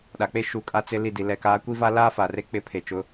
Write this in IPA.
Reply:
ɗ a˨ k͡p e˦ ʃ u˨ kʼ a˦ t͡s ɪ˦ l i˦˨ d i˨ l ɛ˨ k aː˨˦ kʷ i˦ v a˦ l aː˦ f a˨ r e˦ k͡p ɪ˦˨ pʰ e˨ t͡ʃ ʊ˨˦

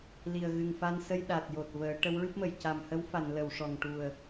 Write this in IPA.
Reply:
l i˨˩ ə̯ ɣ ɨ˨˩ ŋ f a˧ n s ə˧ j ɗ a˨˩ t̚ j o˨˩ t̚ v əː˨˩˦ ʈ ə˧˥ w ɹ ɨ˦˥ p̚ m ə˨˩˨ j c a˨˩ m h ə˧˥ w f a˨˩˨ n l ə˨˩˨ w ʂ ɔ˨˩ ŋ ʈ u˨˩ ə̯

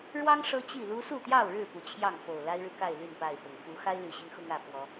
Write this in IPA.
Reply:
ɻ w ɑ˦ ŋ ʂ ɤ˦ t͡ɕ i˥˨ l u˦ s u˥˨ t̪ j ɑ˥˨ ʊ̯ ɻ ɻ̩˥˨ p u˨˩ t͡ɕʰ j ɑ˥˨ ŋ f o˨˩ ʊ̯ l a˦ ɪ̯ ɻ ɻ̩˨ k a˥˨ ɪ̯ l y˥˨ n p a˥˨ ɪ̯ f ʊ˨˩ ŋ f u˨˦ x a˦ ɪ̯ l y˨˩ ɕ i˦ ŋ x ʊ˦ ŋ ä˥˨ f w ɔ˨˦

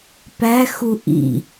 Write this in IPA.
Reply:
p æ x u ʔ ḭ

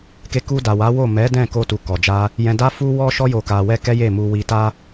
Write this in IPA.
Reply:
k e˧ k u˧ d a˨ w a˨˦ w o˦˨ m ɛ˨˦ d ɛ̃˦˨ k o˧ t u˨ k ɔ˨ d͡ʒ a˧ | j ɛ̃˧ d a˦ f u˦ w ɔ˦ ʃ ɔ˦ j o˧ k a˧ w ɛ˦ k ɛ˦ j e˦˨ m u˧ w i˧ t a˦

